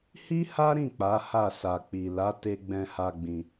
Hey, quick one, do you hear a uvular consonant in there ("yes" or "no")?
no